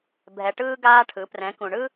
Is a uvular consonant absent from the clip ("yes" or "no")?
yes